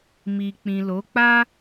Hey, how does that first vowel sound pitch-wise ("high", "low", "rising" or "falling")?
low